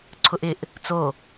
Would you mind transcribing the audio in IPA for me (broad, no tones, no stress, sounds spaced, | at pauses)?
ǀʰ ʊ ʔ ɪ ʔ | t͡s o